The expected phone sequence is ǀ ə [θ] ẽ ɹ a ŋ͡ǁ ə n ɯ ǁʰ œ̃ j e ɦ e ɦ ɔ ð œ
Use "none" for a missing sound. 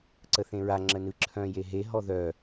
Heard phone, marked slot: θ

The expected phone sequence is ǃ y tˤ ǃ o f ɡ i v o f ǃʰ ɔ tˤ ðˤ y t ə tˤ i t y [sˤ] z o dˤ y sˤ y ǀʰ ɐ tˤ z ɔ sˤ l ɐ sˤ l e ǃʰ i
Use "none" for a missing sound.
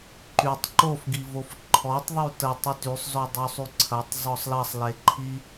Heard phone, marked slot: sˤ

